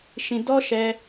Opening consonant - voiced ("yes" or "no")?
no